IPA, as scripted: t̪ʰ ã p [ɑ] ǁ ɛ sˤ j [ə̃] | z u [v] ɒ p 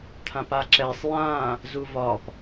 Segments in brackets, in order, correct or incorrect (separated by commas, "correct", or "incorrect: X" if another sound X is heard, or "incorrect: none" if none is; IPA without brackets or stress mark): incorrect: a, incorrect: ã, correct